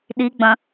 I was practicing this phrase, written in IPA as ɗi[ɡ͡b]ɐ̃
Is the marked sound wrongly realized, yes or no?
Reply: no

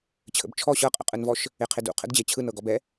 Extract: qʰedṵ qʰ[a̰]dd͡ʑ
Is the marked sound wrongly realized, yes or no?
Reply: yes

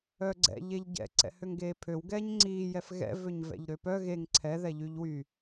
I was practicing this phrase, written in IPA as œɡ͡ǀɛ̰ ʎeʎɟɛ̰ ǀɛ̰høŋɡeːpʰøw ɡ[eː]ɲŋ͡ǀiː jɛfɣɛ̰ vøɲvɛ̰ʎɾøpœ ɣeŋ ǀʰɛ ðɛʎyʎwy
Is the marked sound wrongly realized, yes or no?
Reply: yes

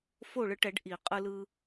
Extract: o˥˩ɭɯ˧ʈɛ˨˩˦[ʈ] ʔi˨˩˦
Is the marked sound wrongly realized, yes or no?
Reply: yes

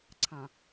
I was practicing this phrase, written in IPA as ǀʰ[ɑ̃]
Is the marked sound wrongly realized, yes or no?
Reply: no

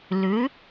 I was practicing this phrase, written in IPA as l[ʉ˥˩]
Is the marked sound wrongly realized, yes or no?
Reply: yes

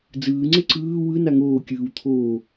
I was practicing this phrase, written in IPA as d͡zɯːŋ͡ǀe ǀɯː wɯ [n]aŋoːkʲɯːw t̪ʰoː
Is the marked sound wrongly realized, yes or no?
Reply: no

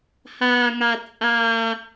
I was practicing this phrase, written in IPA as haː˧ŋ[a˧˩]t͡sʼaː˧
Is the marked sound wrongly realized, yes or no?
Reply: yes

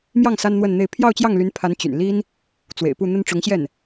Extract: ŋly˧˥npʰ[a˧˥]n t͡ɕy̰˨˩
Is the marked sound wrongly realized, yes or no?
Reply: no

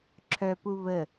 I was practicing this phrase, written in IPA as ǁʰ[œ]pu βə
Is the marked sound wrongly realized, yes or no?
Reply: no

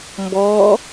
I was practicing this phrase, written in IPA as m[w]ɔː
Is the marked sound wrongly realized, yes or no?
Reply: yes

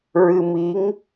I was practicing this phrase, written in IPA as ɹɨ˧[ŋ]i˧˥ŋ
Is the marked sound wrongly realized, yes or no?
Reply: yes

